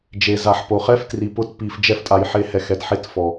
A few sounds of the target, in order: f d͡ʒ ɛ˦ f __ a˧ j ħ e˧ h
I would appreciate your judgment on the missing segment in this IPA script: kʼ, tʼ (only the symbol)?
tʼ